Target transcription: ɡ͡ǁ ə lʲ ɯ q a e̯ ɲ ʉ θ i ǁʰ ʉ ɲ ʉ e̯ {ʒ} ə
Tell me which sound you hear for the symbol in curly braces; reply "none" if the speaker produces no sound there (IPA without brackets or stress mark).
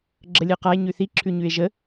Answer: ʒ